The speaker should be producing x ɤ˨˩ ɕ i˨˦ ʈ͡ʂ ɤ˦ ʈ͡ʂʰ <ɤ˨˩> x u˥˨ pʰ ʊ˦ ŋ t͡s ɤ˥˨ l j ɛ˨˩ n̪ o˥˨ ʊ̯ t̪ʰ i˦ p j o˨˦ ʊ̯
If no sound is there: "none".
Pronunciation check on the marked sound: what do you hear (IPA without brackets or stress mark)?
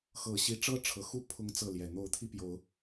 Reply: ɤ˨˩